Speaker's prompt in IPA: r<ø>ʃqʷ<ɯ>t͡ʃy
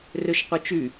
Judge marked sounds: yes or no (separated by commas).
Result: yes, yes